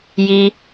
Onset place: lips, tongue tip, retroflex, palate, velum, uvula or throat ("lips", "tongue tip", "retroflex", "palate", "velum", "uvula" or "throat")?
palate